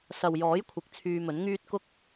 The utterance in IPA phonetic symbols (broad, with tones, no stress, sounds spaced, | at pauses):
s ɐ˨ w j ɔː˨˥ j kʷʰ ɪ˨ k̚ t͡sʰ yː˧ m ɵ˨˥ n ŋ yː˥ t̚ k ʊ˥ k̚